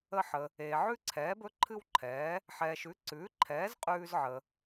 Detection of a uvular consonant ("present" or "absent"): present